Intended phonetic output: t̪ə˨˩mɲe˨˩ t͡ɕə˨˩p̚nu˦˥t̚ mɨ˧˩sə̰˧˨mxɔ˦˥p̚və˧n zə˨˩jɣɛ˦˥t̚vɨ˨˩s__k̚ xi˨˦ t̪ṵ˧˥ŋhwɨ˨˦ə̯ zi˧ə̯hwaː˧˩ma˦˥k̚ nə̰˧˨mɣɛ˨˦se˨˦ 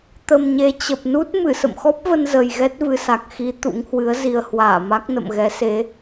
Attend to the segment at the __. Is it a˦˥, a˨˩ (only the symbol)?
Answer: a˨˩